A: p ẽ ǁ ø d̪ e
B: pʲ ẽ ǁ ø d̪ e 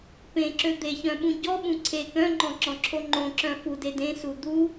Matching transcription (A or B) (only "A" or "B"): A